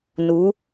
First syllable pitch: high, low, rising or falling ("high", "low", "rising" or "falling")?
rising